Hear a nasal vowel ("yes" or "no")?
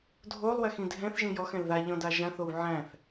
yes